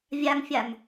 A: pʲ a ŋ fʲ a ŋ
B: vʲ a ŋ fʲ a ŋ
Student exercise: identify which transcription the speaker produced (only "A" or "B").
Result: B